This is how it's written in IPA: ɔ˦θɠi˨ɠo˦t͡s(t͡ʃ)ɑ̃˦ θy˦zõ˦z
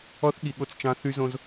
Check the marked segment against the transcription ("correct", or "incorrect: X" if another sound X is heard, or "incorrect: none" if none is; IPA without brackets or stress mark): correct